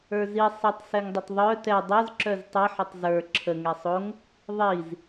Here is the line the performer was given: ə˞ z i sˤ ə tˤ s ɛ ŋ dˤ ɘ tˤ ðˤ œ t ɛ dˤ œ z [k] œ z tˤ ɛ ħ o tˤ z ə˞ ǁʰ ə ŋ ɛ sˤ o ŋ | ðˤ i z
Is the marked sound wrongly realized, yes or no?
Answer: yes